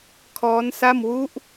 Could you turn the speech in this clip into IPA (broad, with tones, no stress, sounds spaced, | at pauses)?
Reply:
kʰ ɔː˦˥ n s a˥˩ m w u˦˥ ʔ